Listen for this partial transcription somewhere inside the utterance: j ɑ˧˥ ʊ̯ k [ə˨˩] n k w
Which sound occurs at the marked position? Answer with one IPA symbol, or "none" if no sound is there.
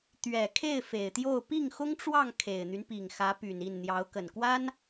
ə˨˩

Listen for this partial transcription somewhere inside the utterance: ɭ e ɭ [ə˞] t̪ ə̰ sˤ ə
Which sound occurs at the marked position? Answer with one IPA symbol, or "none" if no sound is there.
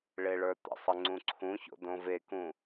ə˞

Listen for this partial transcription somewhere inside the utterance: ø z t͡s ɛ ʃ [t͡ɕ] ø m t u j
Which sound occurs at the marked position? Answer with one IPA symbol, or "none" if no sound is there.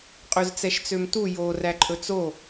t͡s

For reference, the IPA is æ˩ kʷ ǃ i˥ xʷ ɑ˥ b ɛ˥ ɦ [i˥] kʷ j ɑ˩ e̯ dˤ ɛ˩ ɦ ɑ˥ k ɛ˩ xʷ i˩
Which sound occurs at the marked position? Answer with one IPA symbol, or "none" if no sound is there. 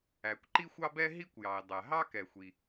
i˥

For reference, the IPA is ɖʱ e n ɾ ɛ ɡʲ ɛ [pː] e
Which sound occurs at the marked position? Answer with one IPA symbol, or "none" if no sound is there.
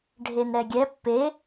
pː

